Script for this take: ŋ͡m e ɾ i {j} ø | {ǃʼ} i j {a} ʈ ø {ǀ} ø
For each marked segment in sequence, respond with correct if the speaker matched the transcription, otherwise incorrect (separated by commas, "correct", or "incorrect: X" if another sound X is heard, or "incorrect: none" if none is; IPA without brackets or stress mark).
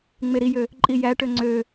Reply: correct, correct, incorrect: æ, incorrect: ŋ͡ǀ